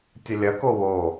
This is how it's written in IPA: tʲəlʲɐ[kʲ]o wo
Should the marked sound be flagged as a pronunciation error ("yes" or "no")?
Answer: yes